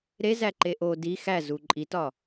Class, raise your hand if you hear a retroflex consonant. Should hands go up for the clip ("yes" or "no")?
no